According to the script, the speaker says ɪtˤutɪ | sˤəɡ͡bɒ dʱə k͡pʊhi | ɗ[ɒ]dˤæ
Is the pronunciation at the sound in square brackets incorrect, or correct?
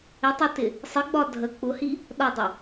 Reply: correct